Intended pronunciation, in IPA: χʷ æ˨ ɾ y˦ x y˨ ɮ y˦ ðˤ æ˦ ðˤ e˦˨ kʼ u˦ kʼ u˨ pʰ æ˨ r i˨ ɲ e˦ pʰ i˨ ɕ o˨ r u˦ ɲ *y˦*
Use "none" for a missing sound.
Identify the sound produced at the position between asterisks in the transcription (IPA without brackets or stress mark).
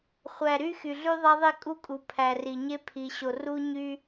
y˦